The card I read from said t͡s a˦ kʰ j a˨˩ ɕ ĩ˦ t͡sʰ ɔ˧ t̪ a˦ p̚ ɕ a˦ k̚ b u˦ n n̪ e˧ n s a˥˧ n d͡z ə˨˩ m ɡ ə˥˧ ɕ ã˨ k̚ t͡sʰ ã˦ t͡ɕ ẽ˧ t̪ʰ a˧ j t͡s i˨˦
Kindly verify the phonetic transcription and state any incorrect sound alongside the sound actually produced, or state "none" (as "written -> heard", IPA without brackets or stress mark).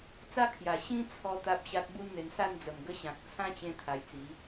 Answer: none